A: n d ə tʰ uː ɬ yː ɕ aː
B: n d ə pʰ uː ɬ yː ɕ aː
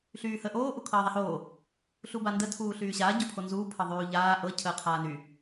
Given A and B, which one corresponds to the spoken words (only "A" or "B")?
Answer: A